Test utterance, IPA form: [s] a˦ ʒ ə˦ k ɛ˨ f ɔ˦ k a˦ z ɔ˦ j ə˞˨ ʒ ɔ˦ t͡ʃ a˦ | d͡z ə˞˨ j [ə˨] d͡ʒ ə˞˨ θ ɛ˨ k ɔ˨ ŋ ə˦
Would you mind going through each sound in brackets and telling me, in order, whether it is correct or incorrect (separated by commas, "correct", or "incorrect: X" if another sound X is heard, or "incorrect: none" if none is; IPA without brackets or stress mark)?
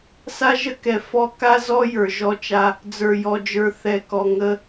correct, incorrect: ɔ˨